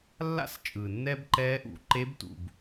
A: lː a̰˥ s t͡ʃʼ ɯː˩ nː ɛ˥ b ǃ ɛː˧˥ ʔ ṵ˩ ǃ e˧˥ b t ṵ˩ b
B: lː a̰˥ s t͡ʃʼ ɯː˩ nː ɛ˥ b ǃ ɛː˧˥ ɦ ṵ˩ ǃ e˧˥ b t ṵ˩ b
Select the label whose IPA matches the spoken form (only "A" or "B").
A